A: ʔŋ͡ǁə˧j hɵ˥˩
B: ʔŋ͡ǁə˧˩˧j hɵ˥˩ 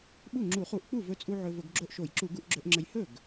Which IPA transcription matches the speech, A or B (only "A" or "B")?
A